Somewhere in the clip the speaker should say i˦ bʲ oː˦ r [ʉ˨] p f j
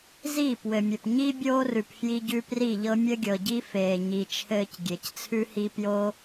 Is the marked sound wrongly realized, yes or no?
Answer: no